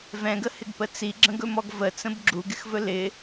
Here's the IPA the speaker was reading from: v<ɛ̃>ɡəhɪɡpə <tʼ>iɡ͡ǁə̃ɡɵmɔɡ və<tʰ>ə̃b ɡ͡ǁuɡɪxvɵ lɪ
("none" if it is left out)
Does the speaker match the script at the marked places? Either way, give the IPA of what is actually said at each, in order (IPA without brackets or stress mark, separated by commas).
ɛ̃, t͡s, t͡s